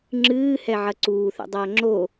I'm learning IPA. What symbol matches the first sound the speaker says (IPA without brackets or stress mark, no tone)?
ŋ͡ǁ